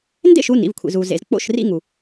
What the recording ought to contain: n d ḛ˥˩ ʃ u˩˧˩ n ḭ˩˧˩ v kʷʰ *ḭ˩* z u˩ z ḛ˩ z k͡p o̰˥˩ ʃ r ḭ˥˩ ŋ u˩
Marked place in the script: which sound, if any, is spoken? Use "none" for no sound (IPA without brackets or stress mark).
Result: ḭ˩